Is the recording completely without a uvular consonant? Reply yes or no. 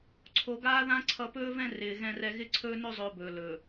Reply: yes